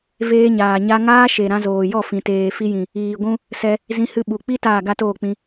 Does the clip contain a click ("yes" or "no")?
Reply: no